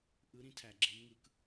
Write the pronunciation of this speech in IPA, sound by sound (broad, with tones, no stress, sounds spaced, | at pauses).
ʔ ɯ˧˥ ɾ ĩ˧˥ tʰ æ˩ ɡ͡ǁ e˩˧ m ŋ ɯ˩˧ k